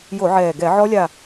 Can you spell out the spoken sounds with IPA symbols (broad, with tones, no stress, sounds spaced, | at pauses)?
j o˧˩˧ ʕ ɛː˨˩ ɡ ɛ˧˩˧ ʕ ɔ˦˥ lʲ a˦˨